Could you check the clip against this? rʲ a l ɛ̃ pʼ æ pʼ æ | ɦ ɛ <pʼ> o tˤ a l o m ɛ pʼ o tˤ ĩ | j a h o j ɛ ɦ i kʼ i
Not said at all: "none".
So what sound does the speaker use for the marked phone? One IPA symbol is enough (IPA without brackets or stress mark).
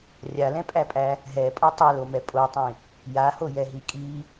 pʼ